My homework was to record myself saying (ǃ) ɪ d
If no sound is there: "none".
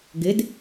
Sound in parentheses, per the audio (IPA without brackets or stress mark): ɡ